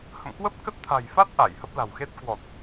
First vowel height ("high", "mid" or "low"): mid